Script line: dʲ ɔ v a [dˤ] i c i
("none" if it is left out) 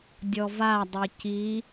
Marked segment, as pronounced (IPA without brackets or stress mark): dˤ